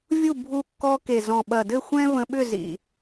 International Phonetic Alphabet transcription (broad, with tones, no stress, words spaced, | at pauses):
vʲu˦˨bʱu˧kːɔ˧ke˨ zɔ̃˨ɓɐ˨dɘ˦˨ xʷɛ̃˦və̃˧ ɓʏ˦˨zḭ˨